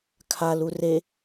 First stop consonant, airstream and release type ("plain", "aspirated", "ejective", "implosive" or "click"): aspirated